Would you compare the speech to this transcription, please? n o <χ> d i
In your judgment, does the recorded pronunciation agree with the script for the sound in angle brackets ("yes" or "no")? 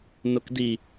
no